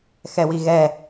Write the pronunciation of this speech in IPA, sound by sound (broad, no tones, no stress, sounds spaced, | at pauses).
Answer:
x ɛ w i ɣ ɛ